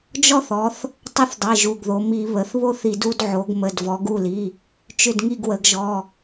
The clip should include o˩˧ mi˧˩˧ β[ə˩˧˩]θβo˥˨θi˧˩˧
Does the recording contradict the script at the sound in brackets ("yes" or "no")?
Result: no